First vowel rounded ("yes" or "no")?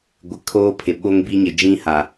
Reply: no